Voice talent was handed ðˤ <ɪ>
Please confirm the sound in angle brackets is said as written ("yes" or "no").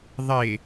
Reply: yes